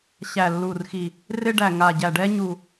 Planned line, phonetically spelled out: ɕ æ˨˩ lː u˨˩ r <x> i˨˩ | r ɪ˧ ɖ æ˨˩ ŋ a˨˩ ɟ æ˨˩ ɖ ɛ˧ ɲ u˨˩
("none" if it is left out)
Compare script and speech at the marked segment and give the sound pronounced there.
x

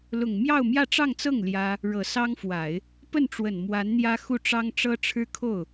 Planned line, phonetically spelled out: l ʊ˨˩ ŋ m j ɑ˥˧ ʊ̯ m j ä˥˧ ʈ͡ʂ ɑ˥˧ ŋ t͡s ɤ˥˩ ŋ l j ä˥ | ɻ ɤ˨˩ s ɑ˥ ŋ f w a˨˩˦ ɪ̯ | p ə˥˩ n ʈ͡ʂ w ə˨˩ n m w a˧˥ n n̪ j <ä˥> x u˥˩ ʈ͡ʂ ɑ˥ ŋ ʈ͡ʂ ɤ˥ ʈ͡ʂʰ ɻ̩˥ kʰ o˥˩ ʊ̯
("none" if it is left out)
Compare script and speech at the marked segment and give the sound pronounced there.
ä˥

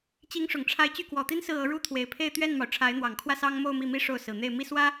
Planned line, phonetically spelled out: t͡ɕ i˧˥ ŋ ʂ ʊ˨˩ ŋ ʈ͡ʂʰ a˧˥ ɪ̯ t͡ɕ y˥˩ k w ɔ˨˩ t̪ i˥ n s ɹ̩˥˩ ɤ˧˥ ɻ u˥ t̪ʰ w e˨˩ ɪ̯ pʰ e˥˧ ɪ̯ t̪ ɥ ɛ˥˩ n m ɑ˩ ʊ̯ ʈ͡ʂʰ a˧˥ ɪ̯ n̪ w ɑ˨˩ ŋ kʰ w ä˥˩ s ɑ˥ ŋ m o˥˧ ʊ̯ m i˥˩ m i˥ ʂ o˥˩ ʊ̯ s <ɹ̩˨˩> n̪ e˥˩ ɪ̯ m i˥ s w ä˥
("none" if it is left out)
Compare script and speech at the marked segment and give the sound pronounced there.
ɹ̩˨˩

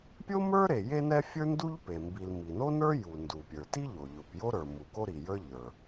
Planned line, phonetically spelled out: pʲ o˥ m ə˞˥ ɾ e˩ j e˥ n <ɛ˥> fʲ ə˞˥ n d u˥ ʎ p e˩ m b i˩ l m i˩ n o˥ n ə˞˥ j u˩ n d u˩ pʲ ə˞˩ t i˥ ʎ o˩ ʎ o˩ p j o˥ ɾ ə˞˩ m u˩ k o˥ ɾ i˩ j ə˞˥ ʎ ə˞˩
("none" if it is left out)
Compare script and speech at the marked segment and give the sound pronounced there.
ɛ˥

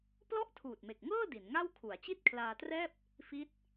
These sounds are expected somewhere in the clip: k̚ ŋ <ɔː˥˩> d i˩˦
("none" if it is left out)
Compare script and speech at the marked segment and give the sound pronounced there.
ɤː˥˩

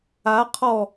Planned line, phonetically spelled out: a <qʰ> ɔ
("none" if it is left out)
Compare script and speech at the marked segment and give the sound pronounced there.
qʰ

